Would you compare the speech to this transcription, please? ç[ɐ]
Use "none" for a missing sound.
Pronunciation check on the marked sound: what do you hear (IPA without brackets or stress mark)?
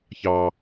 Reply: ɑ